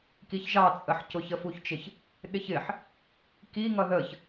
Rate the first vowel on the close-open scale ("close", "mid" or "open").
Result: close